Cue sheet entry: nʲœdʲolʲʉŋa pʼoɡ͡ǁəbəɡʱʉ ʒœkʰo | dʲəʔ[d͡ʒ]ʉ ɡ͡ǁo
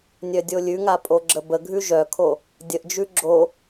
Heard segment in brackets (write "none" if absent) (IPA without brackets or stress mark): d͡ʒ